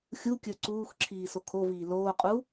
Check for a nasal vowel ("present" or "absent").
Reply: absent